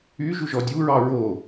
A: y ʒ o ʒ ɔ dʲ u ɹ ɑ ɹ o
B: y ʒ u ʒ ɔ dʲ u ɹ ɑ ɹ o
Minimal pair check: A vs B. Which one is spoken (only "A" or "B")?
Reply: B